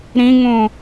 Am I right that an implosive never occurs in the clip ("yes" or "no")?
yes